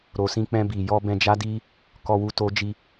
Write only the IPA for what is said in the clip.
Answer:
ɾ o˨ s ĩ˧ k͡p ɛ̃˧ b i˨ j ɔ˧ b ɛ̃˧ d͡ʒ a˦ d i˦ | k ɔ˧ w u˧ t o˦ d͡ʒ i˦

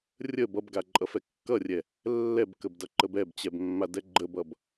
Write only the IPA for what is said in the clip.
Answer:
rʲ ə b ʌ b ɡ a ǃʼ ʌ f ɛ kː ʌ rʲ ɛ | lː ɛ b k ə b d ʌ ǃ ə b ɛ b t͡ɕ ɛ b mː a d ɛ ɡ͡ǃ ə b ʌ b

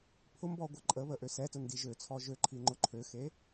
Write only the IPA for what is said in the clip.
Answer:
pʰ ʊ m b ɔ ɡʷ ə ǃʼ ə β ə ʔ ø s ɛ t ʊ n d i ʒ ø t͡sʰ ɔ ʒ ø ǃʰ i ŋ͡ǃ ʊ ǃʰ ø x e

